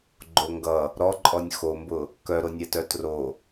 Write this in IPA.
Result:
ɡ͡ǃ o ŋ ɡ ʌ | ɾ ɔ ǃʼ ɔ nʲ x o m b ʊ | k œ ɾ o nʲ ɛ t œ t r o

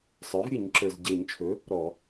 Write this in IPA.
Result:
sˤ ə˞˩˥ v ɾʲ ɨ˧˩˧ ɲ ǁ ə˞˩ z ɟ e˧˩˧ ɲ t͡ʃʰ ɵ˩˥ | ɾ ɔ˧˩˧

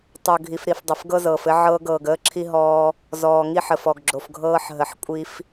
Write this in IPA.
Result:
tˤ o˨ ɡʱ i˨ f ɾ i˨ f dˤ ə˨ f ɡ ɤ˦ z ɤː˨ f ɘ˦ ʕ ɤː˦ ɡ ɤː˨ ɡ əː˦ ǁʰ i˦ ɦ ɔː˦ | z ɔː˨ ŋ i˦ ħ ə˨ f ɔ˨ ɡ ɡ͡ǁ o˨ f ɡʱ ɤː˦ ħ ɦ ə˨ ħ kʷʼ i˦ f

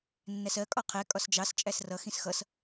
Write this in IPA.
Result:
nː æ s ɜ kʼ ɒ qʰ ɛ kʼ ɒ s d͡ʒ ɑ s t͡ʃʼ æ s r ʌ x ĩ s x ʌ s

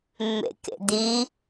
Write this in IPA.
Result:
mː ḛ k ḛ d̪ i

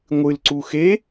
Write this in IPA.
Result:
ŋʷ ɨ l ǀ u x e

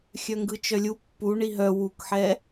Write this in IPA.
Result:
xʲ œ ŋ ɡ ɯ t͡ʃ œ lʲ u pː u ɳ i ɦ œ w u k ħ ɛ

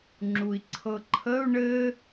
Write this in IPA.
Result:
ŋ͡ǁ u i̯ ǀʰ ɤ ǃʰ ə u̯ ɳ ɘ

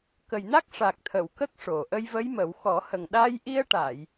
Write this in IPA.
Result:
k ə˨˩ j n a˦˥ k̚ ʂ a˨˩ k̚ t̪ʰ ə˨˩˨ w k ə˦˥ k̚ ʂ o˨˩ ʔ ə˧ j v ə˧˥ j m ə˨˩˦ w x ɔ˨˩˦ h ə˨˩ ŋ ɗ a˧ j ʔ i˧ ə̯ ʈ a˨˩˨ j

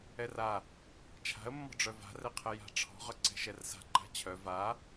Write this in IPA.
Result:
ɛ r a | t͡ʃʰ a̤ ə̯ mː ɔ̤ ɖ͡ʐ œ v a̤ r ɛ qʰ ɛ j a̤ ʈ͡ʂʰ ɔ̤ ʁ œ ǀ ɛ̤ ʃ ɛ r s a̤ ǃ a̤ t͡ɕʰ œ v a

